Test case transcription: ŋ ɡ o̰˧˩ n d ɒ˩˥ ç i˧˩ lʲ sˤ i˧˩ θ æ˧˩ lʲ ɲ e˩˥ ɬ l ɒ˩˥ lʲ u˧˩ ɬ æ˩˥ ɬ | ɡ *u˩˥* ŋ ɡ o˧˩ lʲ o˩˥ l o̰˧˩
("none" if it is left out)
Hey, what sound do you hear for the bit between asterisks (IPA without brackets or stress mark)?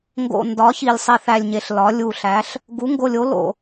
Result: u˩˥